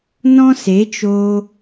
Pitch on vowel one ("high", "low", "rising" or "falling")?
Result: high